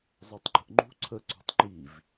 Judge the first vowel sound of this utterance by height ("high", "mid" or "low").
mid